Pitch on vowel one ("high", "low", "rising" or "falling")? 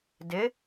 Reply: rising